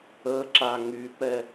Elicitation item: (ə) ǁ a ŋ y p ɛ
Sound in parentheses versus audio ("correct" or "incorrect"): correct